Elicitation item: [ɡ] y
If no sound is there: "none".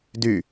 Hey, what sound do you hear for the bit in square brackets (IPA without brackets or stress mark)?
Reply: d